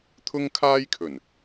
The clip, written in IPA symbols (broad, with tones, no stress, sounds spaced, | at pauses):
t̪ʰ ʊ˥ ŋ kʰ aː˥ j kʰ ɵ˨˩ n